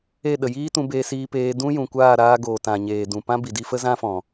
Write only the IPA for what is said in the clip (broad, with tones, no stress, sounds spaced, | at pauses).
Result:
e˦˨ ɗ ə˨ j iː˦ t ũ˧ b e˧ s iː˧ p eː˧ d ũ˦ j ũ˨ kʷ aː˦˨ ɾ aː˧ ɡ oː˨ t ã˨ ɲ eː˨ d ũ˨ p ã˦ b i˨ d i˧ f ə˦ z ã˦ f ɔ̃˨